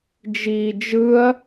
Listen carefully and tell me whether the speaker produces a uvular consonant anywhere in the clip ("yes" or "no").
no